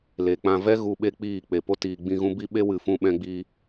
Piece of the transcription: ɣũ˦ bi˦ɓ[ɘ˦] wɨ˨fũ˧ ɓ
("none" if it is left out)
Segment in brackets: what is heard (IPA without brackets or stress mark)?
e˦